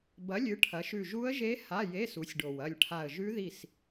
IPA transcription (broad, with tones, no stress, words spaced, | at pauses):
bɐ˨˦lʲɨ˨˦ ʈʰɐ˨˦ʃʉ˦˨ ʒu˦˥ə̯ʒe˦˥ ha˧˥˧je˧˥˧ su˨˦sʲɖo˨˩wɐ˦˨lʲʈʰa˦˨ə̯ ʒʉ˦˥ði˦˨s